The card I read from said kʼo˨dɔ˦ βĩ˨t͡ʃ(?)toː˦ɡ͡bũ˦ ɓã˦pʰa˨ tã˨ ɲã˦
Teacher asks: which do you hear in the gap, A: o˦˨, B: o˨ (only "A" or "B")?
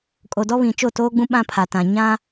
A